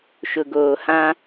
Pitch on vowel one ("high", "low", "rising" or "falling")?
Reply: low